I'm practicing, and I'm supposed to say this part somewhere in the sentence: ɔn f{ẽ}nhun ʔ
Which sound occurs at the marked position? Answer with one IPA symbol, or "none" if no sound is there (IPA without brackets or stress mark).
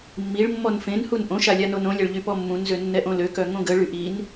ẽ